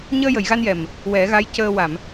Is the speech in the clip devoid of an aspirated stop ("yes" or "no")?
yes